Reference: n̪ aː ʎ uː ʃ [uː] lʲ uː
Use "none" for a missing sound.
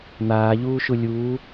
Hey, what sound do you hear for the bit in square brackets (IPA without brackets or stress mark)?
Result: u